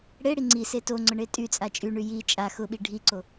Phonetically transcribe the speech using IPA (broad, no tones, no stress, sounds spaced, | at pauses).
ɽ e ɽ i ŋ͡ǀ i s e t o ŋ͡ǀ ʊ ɳ e tʼ y t͡sʼ a t͡ʃʼ y ɳ y j i t͡ʃʼ a x ʊ ɓ i ɖʱ i ǀ o